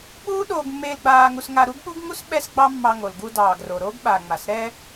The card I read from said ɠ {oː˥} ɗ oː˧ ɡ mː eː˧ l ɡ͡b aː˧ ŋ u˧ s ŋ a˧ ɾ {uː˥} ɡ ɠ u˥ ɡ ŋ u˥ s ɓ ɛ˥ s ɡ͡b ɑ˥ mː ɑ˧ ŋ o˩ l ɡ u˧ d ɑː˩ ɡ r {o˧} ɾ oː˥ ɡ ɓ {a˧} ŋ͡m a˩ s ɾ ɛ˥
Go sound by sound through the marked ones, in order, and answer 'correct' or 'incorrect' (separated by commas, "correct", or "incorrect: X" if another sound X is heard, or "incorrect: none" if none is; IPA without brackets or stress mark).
incorrect: uː˥, incorrect: u˥, incorrect: o˩, incorrect: a˩